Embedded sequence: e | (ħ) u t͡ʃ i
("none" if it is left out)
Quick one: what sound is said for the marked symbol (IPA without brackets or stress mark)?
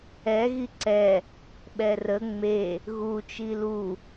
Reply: ɣ